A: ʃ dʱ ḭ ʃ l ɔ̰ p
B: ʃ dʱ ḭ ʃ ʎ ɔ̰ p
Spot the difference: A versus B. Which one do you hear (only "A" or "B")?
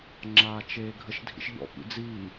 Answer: B